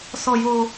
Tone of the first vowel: low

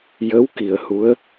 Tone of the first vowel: rising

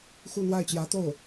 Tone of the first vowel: falling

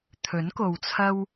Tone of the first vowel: rising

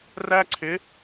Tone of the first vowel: high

